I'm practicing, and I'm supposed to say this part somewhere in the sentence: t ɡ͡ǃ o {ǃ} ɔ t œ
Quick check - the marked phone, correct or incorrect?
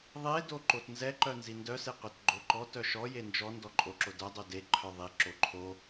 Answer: correct